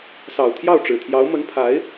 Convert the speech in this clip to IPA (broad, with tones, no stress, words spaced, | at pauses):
sɑ˨˩ʊ̯t̪ʰjɑ˥˩ʊ̯ʈ͡ʂɻ̩˨˩t̪ʰjɑ˧˥ʊ̯ mə˧˥npʰa˧˥ɪ̯